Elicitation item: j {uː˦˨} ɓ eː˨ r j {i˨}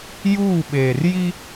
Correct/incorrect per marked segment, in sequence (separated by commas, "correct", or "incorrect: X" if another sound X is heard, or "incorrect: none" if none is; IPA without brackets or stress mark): correct, incorrect: i˦